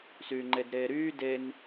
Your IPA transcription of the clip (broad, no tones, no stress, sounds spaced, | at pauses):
s yː ŋ͡ǃ e d ɾ eː ɾ yː d e n